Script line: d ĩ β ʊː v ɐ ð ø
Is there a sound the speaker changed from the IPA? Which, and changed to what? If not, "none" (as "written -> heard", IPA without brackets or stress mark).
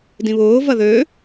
none